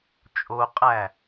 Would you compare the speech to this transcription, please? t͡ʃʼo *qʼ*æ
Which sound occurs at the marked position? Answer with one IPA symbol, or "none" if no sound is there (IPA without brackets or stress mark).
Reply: qʼ